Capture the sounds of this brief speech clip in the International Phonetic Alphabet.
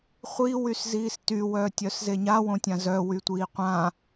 χʷ i w y s z iː s t y w œː tʲ œ s z e ɲ a w õ tʲ ã z œ w y tʷ iː qʷ ã

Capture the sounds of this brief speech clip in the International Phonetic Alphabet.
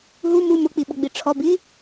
ɦ u m u m ʊ k͡p i ɓ ʊ ɡ͡b i ʈ͡ʂʰ ɔ b i

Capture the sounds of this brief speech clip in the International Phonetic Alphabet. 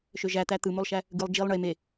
ʃ ø ʒ æ t̪ æ t̪ ɯ m o lˠ ʃ æ | ɡ ɯ lˠ d͡ʒ i lˠ ɳ e m e

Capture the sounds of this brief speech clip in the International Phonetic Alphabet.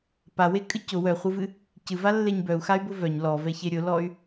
p a w e kʼ ɨ c ʊ w œ χʷ ɨ v ɨ | c ɨ v a lː e ɲ b œ u̯ x a y̯ b ʊ v œ ɲ l ɔ v ɛ ç e ɾʲ ʊ l ɔ y̯

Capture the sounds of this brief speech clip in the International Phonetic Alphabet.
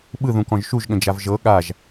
ɓ ɯ ð ũ k ɔ̃ ʒ ʃ u ʒ ɠ ə̃ d͡ʒ a v ʒ ɤ ɠ a ʒ

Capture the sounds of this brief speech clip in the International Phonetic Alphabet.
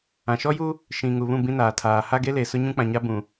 ã˨ ʃ ɔ˦ j u˦ | ʃ ĩ˨ ŋ u˨ β ũ˦˨ b ĩ˦ n aː˨ tʰ aː˨ h a˦ ɡ e˦ l e˨ s ʊ˦ ɲ ũ˦ k͡p ã˨ ɲ a˦ b ũ˨

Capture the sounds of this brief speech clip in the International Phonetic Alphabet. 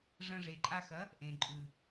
ʐ ɐ̃˧ ʐ e˨ ǃʼ a˧ x ɐ˨˦ | ʔ ẽ˨ ǃʼ ʉ˨

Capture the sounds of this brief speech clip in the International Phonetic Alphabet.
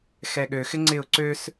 x ɛ ɠ ø x ɪ ŋ͡ǀ ɪ ʊ̯ ǀ ø s

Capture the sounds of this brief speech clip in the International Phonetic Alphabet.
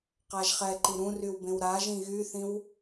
q a ʒ χ ɛ ǃ i ɾ ũ r y w b ẽ w ɾ a ʒ ĩ ɣ y θ ĩ w

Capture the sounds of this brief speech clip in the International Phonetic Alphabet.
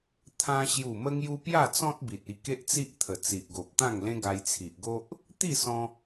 t̪ʰ ã˧ ɕ j u˨˩ m ə˧ ŋ j u˧ p j a˥˧ t͡s ɔ̃˦ t̚ b i˨ t̚ i˧ k e˦ ʔ t͡s i˦ ʔ t̪ʰ ə˨˩ t͡s i˨ ʔ ɡ o˨ p̚ t̪ ã˥˧ ŋ l ẽ˦ ɡ a˧ j t͡sʰ i˨ ʔ ɡ o˦ ʔ | t̪ i˥˧ s ɔ̃˧

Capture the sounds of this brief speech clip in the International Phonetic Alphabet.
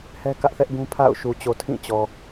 h ɛ˦ k ä˦ ʔ θ ɛ˦ ʔ ɡ ũ˦ pʰ a̰˦˨ ʊ̯ ʃ u˨ t͡ɕ o˨ tʰ ĩ˦˨ t͡ɕ ɔ˨

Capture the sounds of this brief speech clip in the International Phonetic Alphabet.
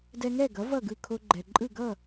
d ɛ˧ ŋ ɛ˥˩ ɡ ʌ˩˥ v ʌ˥˩ ɡ ɯ˥˩ kʰ o˧ ɡ͡ǃ ɛ˩ ǃʼ ɯ˥˩ ɡ ʌ˥˩

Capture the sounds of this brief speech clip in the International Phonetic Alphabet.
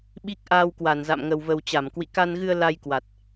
ɓ i˦˥ k̚ ʔ aː˧ w k w a˧˩ n z a̰˧˨ m ŋ ə˨˩ w v ə˨˩ w t͡ɕ a˧˩ m k w ḭ˧˨ k a˧ n ɣ ɨ˧ ə̯ l a˧ j k w a˨˩ t̚

